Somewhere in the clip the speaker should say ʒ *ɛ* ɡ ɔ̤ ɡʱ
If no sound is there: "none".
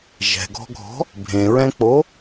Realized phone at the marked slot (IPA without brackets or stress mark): ɛ̤